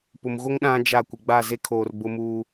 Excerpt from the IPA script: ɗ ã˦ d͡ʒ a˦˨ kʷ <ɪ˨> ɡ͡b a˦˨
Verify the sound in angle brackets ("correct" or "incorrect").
correct